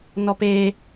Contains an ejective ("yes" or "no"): no